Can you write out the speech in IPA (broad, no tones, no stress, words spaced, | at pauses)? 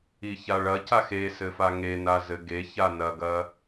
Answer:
içaɭɐcax esɘfa ŋenazɘ ɡe çanɐɡɐ